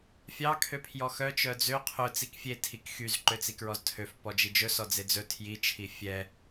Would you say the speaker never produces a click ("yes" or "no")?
no